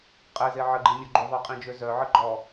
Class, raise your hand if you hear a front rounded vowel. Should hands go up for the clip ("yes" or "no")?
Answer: yes